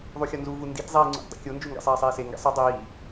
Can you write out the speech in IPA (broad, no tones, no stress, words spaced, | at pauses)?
ðˤuxʲɒnzuvu nditzˤiː ŋ͡ǀṵtdˤḭkʲond͡ʒu ŋɡḭsˤɛːsˤiːse ŋɡɛ̰sˤə dˤiː